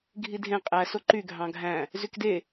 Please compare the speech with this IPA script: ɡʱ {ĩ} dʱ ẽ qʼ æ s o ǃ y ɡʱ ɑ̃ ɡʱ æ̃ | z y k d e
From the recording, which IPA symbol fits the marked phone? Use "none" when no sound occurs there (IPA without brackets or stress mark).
i